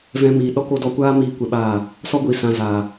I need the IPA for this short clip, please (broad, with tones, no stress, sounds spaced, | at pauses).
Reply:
v ɛ̃˧ m iː˨ ɗ ɔ˦ k o˧ d ɔ˧ kʷ aː˦ m iː˦ kʷ ɛ˧ ɓ aː˦˨ | s ɔ˦ ɡʷ iː˨ s ã˧ z aː˨